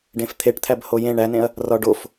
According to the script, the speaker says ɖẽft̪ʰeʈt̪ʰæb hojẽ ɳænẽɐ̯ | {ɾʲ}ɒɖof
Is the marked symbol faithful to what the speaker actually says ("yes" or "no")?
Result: no